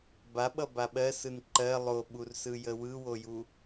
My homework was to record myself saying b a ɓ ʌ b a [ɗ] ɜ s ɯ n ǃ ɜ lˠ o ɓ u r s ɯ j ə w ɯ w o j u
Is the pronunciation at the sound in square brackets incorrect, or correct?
incorrect